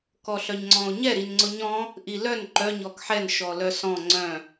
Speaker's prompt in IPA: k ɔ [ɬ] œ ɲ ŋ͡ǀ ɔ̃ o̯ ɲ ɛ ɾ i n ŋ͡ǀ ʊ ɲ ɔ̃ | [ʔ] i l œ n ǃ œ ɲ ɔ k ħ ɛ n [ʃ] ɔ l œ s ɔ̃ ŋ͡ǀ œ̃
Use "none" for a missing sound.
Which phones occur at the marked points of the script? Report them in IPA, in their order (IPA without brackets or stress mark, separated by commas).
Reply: ɬ, ʔ, ʃ